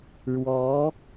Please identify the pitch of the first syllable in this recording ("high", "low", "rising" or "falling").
rising